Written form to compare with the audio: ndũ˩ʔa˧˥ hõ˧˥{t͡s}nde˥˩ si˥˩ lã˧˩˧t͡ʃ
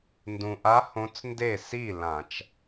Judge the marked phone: correct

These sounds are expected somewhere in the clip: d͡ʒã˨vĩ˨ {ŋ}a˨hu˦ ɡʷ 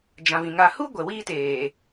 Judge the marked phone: correct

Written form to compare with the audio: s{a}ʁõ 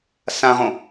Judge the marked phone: incorrect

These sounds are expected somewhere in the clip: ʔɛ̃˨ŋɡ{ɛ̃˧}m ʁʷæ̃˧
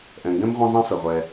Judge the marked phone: incorrect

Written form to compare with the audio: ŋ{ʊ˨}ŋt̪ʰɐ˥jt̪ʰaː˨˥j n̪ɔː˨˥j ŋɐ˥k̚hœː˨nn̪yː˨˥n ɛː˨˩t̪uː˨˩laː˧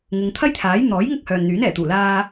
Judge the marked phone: correct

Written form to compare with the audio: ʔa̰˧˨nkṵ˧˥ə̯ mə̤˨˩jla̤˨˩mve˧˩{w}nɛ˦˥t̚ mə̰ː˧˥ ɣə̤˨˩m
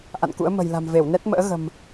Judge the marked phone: correct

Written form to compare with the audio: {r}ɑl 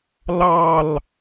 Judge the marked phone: incorrect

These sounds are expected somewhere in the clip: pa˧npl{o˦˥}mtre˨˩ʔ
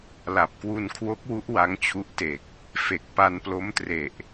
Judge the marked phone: correct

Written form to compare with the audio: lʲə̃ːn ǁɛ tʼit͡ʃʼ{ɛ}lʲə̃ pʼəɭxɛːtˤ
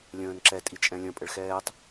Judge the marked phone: incorrect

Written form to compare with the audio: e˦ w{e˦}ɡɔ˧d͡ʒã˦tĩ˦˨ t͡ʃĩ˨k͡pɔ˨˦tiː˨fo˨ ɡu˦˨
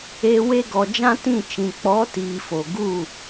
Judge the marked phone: correct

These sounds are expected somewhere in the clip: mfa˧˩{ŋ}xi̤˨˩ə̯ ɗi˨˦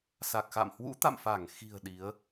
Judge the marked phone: correct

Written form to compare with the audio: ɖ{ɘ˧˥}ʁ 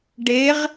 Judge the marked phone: incorrect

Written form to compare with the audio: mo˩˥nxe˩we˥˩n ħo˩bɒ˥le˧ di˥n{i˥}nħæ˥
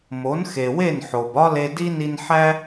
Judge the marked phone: incorrect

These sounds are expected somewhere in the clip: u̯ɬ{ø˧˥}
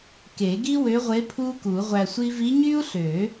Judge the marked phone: incorrect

